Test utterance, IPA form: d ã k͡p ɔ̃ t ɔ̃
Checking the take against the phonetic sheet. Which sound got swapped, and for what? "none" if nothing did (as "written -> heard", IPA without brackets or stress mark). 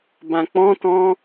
d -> b